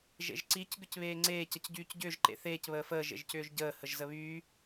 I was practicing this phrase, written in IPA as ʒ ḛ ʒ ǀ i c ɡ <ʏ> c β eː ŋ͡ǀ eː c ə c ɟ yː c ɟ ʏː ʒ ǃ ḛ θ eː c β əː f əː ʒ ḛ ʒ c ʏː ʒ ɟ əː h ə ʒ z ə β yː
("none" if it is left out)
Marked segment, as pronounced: ʏ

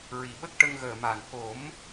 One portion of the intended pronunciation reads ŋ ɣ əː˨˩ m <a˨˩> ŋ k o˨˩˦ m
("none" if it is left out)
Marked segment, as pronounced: a˨˩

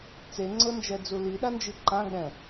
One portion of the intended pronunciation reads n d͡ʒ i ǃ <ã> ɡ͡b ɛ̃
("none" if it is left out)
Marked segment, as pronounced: ã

